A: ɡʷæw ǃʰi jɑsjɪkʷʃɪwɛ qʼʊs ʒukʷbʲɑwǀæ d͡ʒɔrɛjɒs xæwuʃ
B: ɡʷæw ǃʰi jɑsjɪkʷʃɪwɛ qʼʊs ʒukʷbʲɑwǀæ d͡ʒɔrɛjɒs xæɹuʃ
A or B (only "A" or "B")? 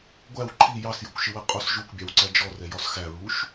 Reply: B